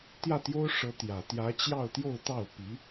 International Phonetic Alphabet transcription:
t̪ j ä˥˩ t̪ j o˥ ʊ̯ ʂ ɤ˧˥ t̪ j ä˨˩ t̪ j ä˧˥ t͡ɕ j ɑ˥˧ ʊ̯ t̪ j o˥˧ ʊ̯ t̪ ɑ˥˩ ʊ̯ p i˧˥

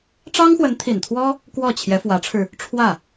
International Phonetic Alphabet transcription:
ʈ͡ʂ ɑ˥ ŋ x w ə˧˥ n t̪ʰ i˨˩ n t̪ʰ w ɔ˥ | k w ɔ˥˩ t͡ɕʰ j ɛ˧˥ f w ä˧˥ ʈ͡ʂʰ ɻ̩˧ | ʈ͡ʂʰ w ä˥˩

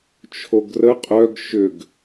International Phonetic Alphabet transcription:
t͡ʃʰ o ɡ r ə qʼ œ ɡ ʃ ʏ ɡ

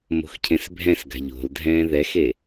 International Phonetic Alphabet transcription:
m o̤ x cʰ ẽ s bʱ ɛ̃ s ɡ a̤ ʎ o̤ l dʱ ɛ̃ː ð ɛ x e

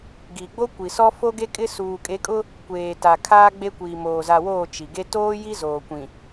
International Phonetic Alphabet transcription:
ɡ i˨ ɡ͡b o˦ kʷ i˨ s ɔ˦ f o˦ ɡ e˦ kʼ ɪ˦ s uː˨ kʼ e˨˦ kʼ ʊ˦ | kʷ eː˨ t a˨ kʰ aː˦ ɡ͡b e˦ kʷ iː˨ m oː˨ z a˨ w oː˦˨ t͡ʃ i˨ ɡ e˦ t oː˦ j i˦ z oː˨ kʷ ĩ˨

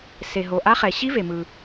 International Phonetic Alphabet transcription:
s e˩ ɦ o˩ ʔ a˧˥ χ ɛ˩ ɕ i˧˥ v e˩ m ɯ˩

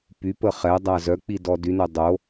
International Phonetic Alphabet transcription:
p y p ə χ ɛ dˤ a z œ k͡p i d ɔ d y n œ dˤ o

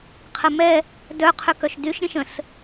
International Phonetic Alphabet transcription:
qʰ ə m ɛ | d œ qʰ ø k œ ʃ d y ʃ ɾʲ ə̃ ʃ ə̃ s

